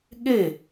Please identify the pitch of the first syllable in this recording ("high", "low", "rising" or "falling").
falling